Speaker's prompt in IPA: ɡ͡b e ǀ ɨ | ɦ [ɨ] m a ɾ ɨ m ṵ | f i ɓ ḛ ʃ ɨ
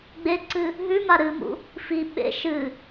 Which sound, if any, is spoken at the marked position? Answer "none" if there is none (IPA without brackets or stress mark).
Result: ʉ